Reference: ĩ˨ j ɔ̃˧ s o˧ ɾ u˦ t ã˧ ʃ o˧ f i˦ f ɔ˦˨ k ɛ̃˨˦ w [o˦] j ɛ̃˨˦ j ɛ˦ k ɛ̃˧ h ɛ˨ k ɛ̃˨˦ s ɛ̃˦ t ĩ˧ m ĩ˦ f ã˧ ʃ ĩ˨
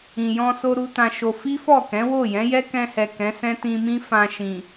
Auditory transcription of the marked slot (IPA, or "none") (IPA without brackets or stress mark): o˦˨